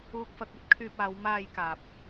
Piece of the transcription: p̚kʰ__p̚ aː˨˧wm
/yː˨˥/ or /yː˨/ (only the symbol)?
yː˨